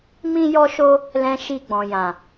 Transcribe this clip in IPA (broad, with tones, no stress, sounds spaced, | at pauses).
m ĩ˦ j ɔ˦ ʃ o˦ | l ɛ̃˧ ʃ i˧ ɡ͡b ɔ̃˨ j ã˨